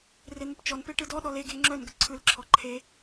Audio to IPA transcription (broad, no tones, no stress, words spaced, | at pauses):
ren̪əpt͡ʃɔnpe ʈɯdɔɗɔ leɡe ŋ͡ǁœn ɡəǀʰɯlǁʰɔ ǃʰe